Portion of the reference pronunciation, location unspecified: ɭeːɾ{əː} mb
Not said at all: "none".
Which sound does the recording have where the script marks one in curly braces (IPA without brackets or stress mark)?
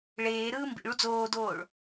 ɯː